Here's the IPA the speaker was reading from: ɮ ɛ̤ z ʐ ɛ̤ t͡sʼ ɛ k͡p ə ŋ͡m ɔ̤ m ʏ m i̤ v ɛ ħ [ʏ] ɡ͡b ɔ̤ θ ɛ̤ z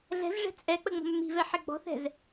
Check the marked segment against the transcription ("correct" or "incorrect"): incorrect